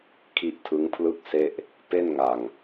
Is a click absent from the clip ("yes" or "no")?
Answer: yes